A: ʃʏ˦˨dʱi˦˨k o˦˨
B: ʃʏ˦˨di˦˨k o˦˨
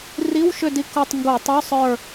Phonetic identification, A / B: B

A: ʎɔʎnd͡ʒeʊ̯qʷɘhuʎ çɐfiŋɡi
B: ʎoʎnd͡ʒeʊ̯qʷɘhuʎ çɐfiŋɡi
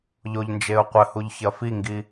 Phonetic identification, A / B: B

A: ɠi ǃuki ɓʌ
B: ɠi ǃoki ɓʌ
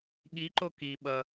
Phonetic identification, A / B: B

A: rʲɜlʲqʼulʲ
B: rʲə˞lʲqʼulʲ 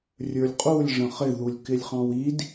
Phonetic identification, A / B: B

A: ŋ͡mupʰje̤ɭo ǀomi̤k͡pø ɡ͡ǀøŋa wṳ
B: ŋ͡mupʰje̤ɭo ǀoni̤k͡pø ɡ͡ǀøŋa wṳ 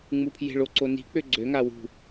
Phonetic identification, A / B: B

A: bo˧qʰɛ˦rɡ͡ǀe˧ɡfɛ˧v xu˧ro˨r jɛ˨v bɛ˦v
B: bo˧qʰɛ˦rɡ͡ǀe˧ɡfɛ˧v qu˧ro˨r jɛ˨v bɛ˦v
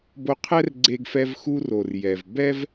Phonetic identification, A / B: A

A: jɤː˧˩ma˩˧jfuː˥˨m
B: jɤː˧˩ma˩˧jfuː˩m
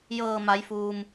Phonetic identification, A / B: B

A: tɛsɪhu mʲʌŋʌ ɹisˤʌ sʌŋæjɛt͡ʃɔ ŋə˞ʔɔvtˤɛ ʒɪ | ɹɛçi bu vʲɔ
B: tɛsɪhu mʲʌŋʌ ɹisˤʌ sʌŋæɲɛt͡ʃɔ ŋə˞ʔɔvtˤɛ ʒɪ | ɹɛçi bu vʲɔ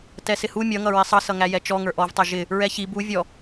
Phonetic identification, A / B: A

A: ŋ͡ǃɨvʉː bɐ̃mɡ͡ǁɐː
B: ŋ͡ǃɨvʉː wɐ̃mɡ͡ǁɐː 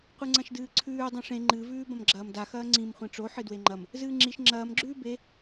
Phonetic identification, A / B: A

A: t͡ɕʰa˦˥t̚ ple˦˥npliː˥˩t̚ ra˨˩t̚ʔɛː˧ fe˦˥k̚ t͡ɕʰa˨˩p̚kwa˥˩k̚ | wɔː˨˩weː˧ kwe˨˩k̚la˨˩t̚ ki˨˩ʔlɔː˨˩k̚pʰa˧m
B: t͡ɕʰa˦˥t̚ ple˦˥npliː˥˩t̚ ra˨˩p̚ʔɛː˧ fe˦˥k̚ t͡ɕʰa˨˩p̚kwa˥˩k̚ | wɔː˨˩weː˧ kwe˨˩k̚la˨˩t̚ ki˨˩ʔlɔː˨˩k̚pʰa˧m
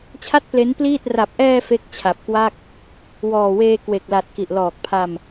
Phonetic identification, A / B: B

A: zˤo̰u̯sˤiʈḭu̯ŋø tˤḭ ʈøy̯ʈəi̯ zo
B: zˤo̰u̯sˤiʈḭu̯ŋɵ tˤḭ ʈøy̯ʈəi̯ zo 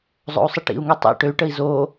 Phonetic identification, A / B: A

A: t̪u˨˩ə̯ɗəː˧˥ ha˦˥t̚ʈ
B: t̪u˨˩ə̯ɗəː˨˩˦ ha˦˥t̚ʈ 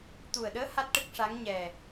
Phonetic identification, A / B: A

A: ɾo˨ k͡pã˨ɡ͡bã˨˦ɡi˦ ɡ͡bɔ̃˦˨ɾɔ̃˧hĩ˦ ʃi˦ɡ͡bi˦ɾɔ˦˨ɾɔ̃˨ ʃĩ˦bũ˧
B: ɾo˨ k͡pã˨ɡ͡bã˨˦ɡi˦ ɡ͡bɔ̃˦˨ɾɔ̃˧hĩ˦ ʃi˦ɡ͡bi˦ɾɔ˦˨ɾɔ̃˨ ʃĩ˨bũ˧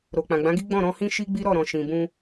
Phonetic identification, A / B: B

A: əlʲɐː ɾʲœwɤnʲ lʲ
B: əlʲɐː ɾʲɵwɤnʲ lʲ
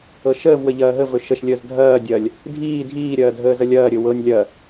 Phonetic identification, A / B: B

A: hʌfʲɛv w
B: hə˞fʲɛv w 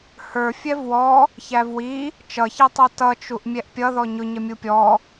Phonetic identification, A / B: B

